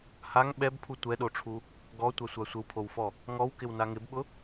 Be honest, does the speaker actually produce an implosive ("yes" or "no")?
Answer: yes